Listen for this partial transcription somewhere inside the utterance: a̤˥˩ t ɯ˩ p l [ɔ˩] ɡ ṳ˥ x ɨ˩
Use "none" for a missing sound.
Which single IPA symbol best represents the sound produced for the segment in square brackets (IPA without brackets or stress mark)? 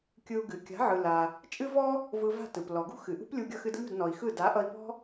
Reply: ɔ˩